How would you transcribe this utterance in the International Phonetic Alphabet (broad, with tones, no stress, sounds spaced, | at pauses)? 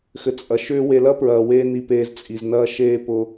x ɘ˧ t͡sʼ ɐ˧ ʃ ʏː˥ w e˧ l ɐ˥ p ɹ ɐː˧ w eː˥ n i˧ p eː˧ z t͡sʼ i˩ z n ɐː˧ ʃ eː˧ p ʊ˧